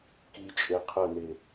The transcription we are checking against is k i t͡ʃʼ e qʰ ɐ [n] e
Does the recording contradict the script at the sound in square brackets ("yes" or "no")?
no